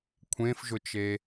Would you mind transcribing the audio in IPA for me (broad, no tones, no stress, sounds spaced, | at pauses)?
kʷʰ ẽ f ʒ ʊ t͡ʃ e